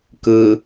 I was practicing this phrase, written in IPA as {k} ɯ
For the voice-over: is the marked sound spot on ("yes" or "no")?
yes